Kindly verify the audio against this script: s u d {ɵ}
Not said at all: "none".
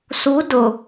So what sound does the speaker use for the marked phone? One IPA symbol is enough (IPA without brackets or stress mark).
ʊ